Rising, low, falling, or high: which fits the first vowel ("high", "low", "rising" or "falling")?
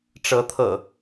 rising